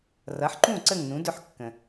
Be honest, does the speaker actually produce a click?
yes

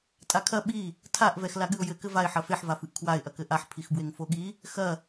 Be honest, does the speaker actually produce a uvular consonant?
no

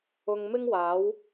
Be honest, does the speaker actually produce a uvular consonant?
no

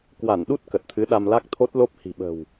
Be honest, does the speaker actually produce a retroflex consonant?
no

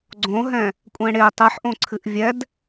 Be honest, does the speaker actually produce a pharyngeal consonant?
yes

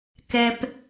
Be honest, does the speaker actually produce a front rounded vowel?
no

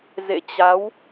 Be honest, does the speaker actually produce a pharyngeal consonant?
no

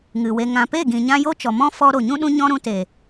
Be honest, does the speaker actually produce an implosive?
yes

